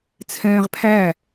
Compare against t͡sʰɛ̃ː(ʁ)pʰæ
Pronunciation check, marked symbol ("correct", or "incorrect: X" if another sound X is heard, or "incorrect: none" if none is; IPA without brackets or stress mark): correct